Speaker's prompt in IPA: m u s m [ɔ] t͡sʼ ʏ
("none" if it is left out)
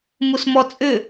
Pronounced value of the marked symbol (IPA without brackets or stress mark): ɔ